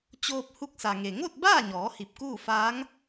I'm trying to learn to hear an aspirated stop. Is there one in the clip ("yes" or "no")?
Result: no